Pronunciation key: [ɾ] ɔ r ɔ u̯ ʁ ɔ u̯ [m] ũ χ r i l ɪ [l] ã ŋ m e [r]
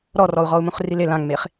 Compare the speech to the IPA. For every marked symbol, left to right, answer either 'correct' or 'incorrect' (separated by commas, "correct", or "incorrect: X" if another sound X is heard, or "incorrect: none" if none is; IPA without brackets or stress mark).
correct, correct, correct, incorrect: χ